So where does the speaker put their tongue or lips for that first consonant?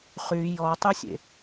uvula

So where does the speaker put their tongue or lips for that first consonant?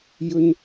palate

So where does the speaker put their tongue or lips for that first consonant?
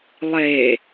tongue tip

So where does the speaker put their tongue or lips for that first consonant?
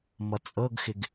lips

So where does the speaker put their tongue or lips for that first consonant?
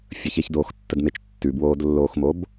lips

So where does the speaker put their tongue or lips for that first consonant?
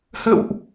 throat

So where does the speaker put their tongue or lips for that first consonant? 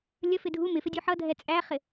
tongue tip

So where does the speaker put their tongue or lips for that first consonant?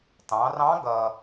tongue tip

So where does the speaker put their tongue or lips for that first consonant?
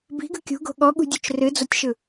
lips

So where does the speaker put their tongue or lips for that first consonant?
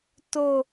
tongue tip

